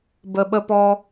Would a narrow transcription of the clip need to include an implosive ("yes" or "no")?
yes